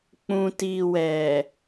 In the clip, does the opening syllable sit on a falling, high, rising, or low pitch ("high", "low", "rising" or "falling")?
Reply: low